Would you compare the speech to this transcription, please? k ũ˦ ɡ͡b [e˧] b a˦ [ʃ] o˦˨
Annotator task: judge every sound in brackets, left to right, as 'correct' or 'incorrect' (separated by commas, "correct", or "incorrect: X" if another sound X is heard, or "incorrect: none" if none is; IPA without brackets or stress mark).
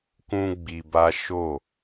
incorrect: i˧, correct